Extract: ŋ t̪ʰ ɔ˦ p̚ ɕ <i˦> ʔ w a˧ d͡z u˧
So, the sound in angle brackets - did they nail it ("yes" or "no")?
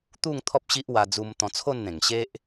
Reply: yes